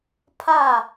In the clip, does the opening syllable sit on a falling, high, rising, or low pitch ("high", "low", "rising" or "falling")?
falling